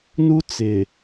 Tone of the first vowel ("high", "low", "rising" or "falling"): high